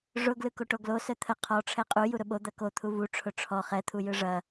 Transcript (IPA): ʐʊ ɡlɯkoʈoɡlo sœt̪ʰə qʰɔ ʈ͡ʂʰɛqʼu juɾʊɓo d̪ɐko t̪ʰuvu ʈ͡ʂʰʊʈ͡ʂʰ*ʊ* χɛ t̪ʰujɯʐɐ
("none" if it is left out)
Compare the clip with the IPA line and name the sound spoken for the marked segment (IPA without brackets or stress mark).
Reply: ɔ